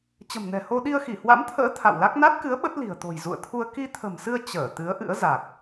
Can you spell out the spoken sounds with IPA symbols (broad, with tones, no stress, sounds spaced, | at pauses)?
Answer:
t͡ɕ ə̤˨˩ m n ɛ̤˨˩ h o˧ ɗ i˧ ə̯ x i˧˩ h w a̰˧˥ m t̪ʰ ə̰ː˧˥ t̪ʰ a̰˧˨ w l a˦˥ k̚ n a˦˥ t̚ k ɨ˨˦ ə̯ ɓ ə˦˥ t̚ l i̤˨˩ ə̯ t̪ o̤˨˩ j z ṵ˧˨ ə̯ t̪ʰ u˧ ə̯ k i˧ t̪ʰ ə̤˨˩ m s ɨ˧ ə̯ t͡ɕ əː˧˩ t̪ ɨ˨˦ ə̯ ʔ ɨ̰˧˥ ə̯ z a˨˩ k̚